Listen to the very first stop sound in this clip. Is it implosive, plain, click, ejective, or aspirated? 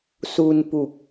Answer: plain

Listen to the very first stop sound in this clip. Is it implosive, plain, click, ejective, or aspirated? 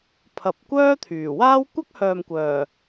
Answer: aspirated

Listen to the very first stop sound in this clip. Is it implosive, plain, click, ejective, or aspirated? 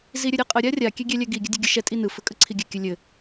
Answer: ejective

